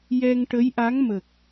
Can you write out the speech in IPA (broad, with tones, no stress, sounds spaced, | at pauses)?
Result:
j ɛ˧ ŋ ʈ ə˧˥ j ʔ a˧˥ ŋ m ə˨˩ k̚